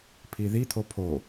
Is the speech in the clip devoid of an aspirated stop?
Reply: no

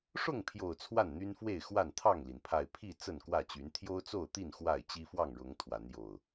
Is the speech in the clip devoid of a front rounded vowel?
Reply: no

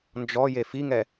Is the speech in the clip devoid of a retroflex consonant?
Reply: yes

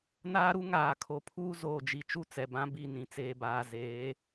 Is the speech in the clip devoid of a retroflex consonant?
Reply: yes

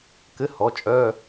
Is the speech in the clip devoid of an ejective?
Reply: no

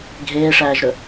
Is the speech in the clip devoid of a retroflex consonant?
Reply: no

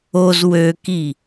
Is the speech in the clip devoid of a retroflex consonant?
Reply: yes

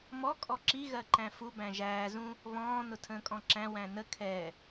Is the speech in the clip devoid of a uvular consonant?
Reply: yes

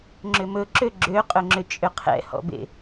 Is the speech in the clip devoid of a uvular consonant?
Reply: no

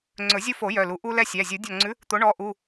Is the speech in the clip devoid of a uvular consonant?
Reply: yes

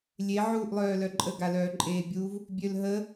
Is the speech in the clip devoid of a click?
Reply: no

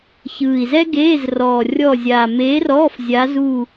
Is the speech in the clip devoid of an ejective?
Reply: yes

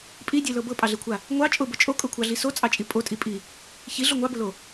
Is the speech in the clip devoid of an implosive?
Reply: yes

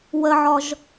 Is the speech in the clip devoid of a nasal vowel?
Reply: yes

